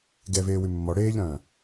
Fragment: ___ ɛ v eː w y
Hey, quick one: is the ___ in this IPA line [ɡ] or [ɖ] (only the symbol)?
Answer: ɡ